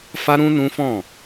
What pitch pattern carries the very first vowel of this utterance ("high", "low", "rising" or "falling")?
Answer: high